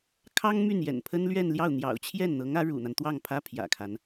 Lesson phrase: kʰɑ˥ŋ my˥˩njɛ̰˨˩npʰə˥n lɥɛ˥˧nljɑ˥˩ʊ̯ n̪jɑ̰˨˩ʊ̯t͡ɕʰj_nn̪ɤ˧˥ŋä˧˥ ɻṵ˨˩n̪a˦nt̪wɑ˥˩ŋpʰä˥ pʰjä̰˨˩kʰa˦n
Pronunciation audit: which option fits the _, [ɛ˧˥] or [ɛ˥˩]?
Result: ɛ˥˩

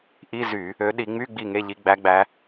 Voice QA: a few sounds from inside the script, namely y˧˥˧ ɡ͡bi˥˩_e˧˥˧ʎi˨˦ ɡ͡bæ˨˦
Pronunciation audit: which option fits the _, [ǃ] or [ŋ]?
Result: ŋ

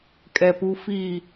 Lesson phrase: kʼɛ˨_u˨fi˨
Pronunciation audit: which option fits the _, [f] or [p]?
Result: p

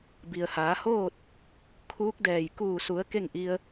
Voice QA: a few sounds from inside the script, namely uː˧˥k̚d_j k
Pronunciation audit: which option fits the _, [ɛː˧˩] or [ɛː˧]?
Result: ɛː˧˩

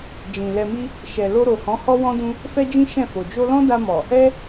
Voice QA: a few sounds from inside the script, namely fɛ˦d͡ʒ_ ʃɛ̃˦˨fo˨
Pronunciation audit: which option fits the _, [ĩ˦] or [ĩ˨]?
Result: ĩ˦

